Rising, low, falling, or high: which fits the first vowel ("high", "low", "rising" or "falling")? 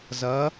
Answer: rising